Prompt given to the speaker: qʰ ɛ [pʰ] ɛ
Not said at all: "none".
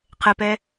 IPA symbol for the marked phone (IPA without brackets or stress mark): p